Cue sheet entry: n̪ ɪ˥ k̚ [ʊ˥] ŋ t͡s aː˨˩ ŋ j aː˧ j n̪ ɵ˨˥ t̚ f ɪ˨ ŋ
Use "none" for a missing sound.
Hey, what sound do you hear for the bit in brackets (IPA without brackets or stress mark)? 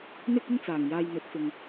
ʊ˥